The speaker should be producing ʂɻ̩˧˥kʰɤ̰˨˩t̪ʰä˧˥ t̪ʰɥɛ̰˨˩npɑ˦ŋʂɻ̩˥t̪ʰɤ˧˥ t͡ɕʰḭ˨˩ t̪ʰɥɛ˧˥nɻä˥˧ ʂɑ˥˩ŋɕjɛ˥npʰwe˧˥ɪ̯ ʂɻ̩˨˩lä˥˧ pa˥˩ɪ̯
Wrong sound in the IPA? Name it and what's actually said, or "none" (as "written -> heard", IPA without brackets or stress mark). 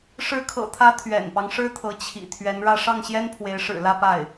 none